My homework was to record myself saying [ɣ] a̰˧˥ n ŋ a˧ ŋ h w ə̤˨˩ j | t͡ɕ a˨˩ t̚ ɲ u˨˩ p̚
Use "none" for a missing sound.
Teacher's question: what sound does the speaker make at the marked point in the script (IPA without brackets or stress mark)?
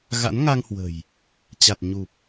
ɣ